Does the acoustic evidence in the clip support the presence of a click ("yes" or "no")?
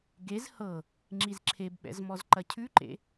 yes